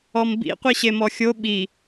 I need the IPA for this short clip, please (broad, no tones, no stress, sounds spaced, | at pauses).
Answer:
ɔ m b ḭ qʷ i ɕ e m ɔ xʲ o ɓ i